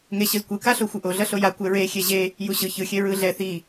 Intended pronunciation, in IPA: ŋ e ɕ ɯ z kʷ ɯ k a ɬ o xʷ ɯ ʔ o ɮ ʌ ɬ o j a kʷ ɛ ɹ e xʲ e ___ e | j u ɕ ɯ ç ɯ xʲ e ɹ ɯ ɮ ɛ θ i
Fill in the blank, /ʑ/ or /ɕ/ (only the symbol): ʑ